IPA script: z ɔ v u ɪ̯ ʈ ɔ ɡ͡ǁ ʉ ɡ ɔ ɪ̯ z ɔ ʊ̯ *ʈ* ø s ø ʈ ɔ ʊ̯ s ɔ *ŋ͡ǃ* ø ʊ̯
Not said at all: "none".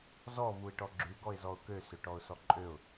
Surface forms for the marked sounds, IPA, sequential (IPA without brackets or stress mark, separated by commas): k, ǃʼ